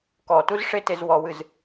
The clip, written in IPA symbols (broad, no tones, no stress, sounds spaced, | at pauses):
k ɔ t u z ʂ e t e z w ɔ w ɨ z